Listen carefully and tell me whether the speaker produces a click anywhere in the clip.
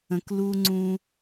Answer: yes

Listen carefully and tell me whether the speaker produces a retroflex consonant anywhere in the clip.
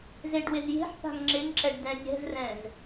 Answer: yes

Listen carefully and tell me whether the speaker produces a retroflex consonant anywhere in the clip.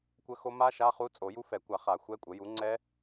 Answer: no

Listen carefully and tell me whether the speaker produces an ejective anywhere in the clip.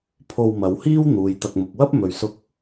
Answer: no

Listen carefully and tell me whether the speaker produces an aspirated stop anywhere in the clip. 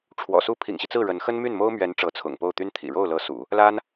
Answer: yes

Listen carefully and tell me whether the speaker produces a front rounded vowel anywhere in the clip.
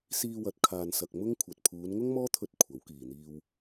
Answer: no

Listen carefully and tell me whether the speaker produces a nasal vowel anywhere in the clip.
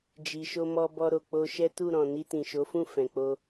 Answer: yes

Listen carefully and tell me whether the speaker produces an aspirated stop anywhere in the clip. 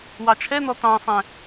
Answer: yes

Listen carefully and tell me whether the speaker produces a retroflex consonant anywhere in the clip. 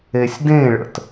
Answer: yes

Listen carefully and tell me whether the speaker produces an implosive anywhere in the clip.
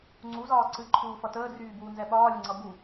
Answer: yes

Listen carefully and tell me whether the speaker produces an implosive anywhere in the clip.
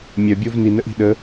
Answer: yes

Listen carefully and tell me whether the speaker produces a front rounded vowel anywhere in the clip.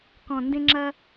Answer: no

